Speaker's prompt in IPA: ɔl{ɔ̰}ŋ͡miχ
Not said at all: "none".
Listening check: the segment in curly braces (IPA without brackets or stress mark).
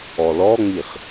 ɔ